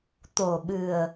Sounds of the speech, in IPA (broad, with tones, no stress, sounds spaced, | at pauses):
t̪ o˨˩ ɓ ɨ˨˩ ə̯